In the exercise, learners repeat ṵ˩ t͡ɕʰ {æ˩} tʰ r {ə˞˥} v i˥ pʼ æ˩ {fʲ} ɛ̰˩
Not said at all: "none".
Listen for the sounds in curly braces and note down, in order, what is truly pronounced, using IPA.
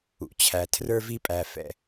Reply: æ˩, ə˞˥, f

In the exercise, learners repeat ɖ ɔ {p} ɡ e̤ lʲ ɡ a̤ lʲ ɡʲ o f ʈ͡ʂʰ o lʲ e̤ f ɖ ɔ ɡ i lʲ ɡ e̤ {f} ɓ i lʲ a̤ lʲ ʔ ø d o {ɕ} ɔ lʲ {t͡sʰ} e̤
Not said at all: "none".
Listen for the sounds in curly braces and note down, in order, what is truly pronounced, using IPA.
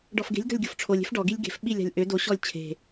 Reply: f, f, ɕ, t͡ɕʰ

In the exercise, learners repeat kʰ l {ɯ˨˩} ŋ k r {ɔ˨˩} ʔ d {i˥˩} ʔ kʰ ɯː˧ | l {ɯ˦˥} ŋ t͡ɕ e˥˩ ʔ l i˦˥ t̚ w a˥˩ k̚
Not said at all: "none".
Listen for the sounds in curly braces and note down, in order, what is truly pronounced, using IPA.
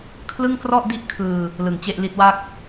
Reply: ɯ˥˩, ɔ˥˩, i˥˩, ɯ˨˩

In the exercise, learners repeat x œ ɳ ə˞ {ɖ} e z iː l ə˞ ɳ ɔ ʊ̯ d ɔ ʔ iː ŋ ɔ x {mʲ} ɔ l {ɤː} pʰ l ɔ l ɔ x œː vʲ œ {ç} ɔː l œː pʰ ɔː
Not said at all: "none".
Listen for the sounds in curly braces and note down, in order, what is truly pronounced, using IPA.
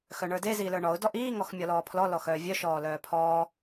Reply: d, mʲ, ɔː, ʃ

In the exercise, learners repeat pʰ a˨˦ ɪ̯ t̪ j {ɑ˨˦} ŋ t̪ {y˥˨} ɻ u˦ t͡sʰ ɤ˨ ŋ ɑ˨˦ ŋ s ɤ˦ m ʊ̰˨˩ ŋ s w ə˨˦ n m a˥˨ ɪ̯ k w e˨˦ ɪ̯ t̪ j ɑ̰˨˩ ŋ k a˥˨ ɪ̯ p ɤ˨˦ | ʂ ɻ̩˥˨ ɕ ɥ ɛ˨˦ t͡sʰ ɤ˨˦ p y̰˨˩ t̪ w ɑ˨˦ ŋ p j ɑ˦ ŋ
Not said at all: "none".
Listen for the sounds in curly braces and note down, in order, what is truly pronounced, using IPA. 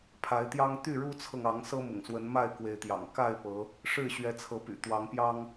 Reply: ɑ˦, y˥˨

